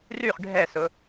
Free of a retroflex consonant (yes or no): no